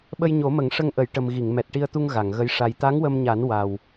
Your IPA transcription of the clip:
ɓ ə˧ j ɲ o˨˩˦ m ə˨˩˦ ŋ ʂ ə˧ ŋ ʔ ə˨˩˦ j ʈ ə˨˩ m ɣ i˨˩˨ ŋ m ɛ˨˩ t̚ ʈ i˧ ə̯ t̪ u˧ ŋ ɣ a˨˩˨ ŋ ɣ ə˧˥ j ʂ a˧ j t̪ a˧˥ ŋ w ə˧ m ɲ a˨˩˦ n w a˨˩ w

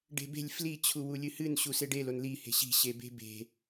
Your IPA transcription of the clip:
ɖ e̤ b e̤ lʲ f l i t͡ɕʰ u w u lʲ ɨ h ɨ n ɕ u s e ɖ e l o n l i h e̤ ɕ i̤ ɕ e b e̤ b e̤

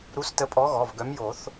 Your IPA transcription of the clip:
ɾ u˨˥ s t ə˨˥ pʼ ɔ˨˥ ɣ ɔ˩˧˩ v ɡ œ˨˥ m j o˨˩˦ θ

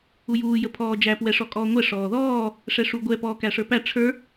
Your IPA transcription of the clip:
u j uː j ə pʰ ɔː d͡ʒ æ p w ɛ ʂ ɔ kʼ ɔː ŋʷ ɛ ʂ ɔː ð ɔː | ʂ ɛ ʂ u ɡʷ ɛ p ɔː k æ ʂ ə˞ p æ ʈ͡ʂʰ ə˞

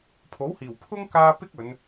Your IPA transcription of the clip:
pʰ o˨˥ w h iː˨˩ w pʰ ʊ˥ ŋ k aː˧ p ɪ˥ k̚ ɵ˨˧ n

